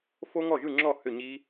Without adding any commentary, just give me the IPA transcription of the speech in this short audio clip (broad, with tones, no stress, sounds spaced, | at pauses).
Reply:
f o˦˥ ŋ ɔ˥˩ ʒ ɯ˥˩ ŋ͡ǁ ɔ˥˩ h ʏ˥˩ ɲ i˦˥